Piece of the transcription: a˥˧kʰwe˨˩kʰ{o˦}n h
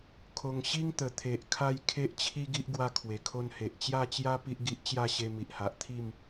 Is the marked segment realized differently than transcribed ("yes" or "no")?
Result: no